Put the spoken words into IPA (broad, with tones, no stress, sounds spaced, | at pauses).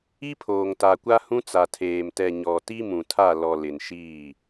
i˦ pʰ oː˨ ŋ t a˨ kʷ a˦ h ũ˦ t͡s a˨ tʰ eː˨ m t ɛ˨ ɲ ɔ˨ t i˦ m ũ˨ tʰ a˦˨ l ɔ˨ l ɪ˨ n ʃ iː˦˨